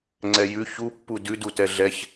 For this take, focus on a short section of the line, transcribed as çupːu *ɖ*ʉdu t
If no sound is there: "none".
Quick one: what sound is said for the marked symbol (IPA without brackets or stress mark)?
d